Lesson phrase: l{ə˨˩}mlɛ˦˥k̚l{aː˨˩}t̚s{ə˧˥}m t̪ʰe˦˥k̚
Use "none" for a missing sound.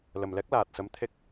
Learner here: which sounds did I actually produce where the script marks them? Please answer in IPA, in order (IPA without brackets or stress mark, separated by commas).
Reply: ə˨˩, aː˨˩, ə˧˥